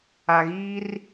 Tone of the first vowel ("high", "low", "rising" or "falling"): low